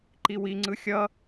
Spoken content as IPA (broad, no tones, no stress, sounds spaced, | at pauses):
ǃ i w i ŋ͡ǀ ɯ xʲ ʌ